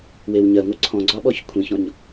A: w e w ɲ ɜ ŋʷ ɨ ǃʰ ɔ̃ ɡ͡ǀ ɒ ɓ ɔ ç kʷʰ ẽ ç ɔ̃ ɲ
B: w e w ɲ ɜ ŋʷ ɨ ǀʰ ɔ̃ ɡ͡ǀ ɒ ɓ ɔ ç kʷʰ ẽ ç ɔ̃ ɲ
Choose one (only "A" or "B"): B